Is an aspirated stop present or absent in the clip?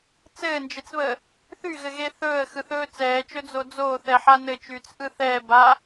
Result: absent